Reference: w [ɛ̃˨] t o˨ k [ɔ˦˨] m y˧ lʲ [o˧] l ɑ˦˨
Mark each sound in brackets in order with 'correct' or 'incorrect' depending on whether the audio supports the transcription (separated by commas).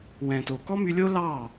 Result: correct, incorrect, incorrect